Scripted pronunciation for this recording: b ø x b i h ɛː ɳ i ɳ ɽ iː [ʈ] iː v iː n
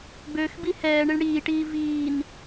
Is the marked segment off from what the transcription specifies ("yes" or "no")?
no